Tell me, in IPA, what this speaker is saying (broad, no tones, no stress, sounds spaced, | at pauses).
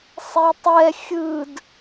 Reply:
sˤ e tˤ ɛ xʲ ɯ d